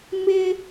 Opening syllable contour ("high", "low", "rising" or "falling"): high